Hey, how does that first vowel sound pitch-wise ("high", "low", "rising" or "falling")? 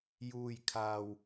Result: low